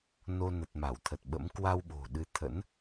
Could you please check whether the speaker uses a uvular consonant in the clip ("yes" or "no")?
no